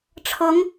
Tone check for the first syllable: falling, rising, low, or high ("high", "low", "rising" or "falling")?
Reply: rising